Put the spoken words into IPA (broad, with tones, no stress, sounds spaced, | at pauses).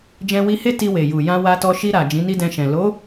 d͡ʒ ɛ̃˧ w i˧ h e˦ t i˧ w e˨ j u˨ j ã˧ w a˧ t ɔ˧ ʃ i˧ ɾ a˨ d͡ʒ ĩ˨˦ n i˦ d ɛ̃˧ ʃ ɛ̃˨ l o˨˦